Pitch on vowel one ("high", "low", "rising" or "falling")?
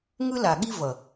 high